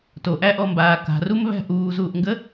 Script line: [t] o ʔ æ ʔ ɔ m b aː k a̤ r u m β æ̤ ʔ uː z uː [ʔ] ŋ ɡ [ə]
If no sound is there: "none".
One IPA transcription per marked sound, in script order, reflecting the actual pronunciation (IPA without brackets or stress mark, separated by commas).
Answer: t, ʔ, ə